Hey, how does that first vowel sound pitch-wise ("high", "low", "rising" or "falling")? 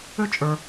high